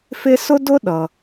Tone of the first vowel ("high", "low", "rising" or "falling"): high